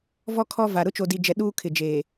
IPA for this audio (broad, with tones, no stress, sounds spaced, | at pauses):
v ɔ˦ kʰ ɔ˦ v a˨ ɾ ʊ˦ t͡ʃ o˨ d i˨ d͡ʒ ɛ˨ ɗ uː˦ kʰ ɪ˨ d͡ʒ eː˨